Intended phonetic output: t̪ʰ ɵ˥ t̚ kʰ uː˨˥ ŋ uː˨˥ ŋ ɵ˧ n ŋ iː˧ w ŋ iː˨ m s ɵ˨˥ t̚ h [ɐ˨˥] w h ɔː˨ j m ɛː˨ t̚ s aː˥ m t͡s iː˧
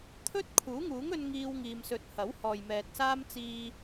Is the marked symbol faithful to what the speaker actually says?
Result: yes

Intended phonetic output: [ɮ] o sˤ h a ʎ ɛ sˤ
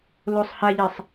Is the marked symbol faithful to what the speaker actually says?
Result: no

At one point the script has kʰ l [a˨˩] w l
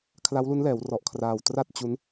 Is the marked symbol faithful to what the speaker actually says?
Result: no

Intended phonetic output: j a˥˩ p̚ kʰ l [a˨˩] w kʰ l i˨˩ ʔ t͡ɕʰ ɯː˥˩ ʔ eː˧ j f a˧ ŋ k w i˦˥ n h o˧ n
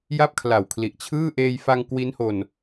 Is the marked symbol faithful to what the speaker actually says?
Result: yes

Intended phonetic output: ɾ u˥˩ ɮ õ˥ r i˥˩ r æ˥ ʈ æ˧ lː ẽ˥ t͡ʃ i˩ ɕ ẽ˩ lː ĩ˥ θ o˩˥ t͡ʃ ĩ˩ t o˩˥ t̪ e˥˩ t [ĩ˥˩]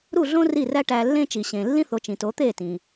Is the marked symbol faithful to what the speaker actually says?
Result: no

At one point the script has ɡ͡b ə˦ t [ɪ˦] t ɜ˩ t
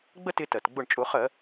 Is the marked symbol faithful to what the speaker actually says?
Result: yes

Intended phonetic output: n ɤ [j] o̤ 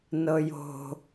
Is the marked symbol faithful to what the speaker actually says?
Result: yes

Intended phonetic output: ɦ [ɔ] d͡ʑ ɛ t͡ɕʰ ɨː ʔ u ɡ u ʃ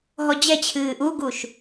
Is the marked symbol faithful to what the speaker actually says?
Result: yes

